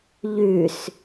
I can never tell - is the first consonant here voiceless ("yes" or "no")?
no